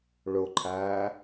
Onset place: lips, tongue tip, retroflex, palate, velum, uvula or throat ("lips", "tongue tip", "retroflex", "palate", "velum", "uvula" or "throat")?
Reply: retroflex